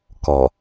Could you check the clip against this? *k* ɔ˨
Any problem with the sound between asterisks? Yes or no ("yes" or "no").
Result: no